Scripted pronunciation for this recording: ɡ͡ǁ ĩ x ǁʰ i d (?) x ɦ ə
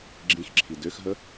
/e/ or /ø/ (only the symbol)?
ø